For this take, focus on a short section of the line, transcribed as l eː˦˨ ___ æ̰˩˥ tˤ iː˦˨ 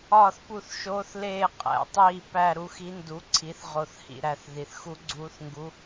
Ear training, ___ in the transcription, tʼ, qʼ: qʼ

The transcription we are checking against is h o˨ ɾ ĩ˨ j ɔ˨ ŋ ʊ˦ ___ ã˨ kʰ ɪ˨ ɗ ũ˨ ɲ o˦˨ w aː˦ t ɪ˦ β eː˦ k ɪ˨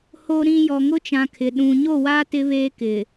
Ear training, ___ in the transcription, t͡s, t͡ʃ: t͡ʃ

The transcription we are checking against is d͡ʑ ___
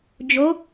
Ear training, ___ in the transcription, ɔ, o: o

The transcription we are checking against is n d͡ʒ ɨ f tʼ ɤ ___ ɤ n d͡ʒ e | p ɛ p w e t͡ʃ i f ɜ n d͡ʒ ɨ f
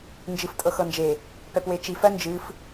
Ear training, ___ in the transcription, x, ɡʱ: x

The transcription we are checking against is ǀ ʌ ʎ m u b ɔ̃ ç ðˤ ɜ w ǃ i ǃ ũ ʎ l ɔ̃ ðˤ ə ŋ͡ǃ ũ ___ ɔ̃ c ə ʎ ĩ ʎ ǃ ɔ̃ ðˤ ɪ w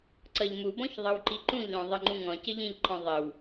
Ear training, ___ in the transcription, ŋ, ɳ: ŋ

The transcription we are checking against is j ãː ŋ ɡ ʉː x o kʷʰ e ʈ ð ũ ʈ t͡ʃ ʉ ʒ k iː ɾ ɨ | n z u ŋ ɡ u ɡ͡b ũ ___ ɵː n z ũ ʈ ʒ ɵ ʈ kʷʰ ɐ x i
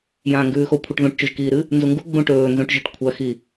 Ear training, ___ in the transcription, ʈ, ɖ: ʈ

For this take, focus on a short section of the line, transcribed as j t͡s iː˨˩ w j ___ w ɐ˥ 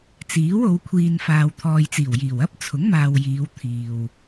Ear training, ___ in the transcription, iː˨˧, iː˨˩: iː˨˩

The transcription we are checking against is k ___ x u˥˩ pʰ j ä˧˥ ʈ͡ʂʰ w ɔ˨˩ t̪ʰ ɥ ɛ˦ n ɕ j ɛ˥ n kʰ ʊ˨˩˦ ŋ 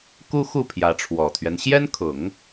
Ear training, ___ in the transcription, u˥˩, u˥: u˥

